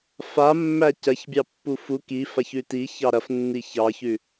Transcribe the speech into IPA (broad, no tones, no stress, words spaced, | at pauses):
famːæ cɐçbʲɑpːu fu ki façʉti çɑɾɐfnːi çɑçʉ